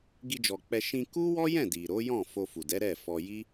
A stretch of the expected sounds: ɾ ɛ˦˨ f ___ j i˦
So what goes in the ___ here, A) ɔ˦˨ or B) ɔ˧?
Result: B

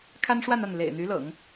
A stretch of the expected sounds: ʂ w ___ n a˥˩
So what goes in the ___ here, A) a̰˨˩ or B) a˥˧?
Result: B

